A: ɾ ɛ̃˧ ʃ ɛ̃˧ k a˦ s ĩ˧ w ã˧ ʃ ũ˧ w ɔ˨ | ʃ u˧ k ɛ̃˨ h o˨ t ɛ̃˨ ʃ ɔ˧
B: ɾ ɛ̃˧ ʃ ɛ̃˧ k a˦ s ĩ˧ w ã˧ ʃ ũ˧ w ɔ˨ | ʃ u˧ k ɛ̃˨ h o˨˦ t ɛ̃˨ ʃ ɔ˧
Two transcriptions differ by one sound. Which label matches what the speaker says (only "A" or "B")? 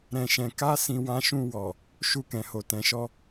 A